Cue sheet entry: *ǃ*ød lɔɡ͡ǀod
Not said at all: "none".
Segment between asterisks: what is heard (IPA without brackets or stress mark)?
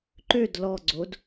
ǃ